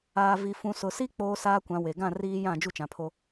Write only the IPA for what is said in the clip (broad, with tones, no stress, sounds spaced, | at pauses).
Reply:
aː˨ v i˨ f ũ˨ s ʊ˨ s i˦ k͡p oː˦ s aː˦ kʷ ã˨˦ w e˨ ɡ ã˦˨ r iː˦ j ã˦˨ d͡ʒ u˦ t͡ʃ ã˨ pʰ o˦